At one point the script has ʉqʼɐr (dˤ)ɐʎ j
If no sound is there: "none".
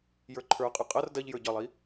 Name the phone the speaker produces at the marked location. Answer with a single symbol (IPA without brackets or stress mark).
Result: d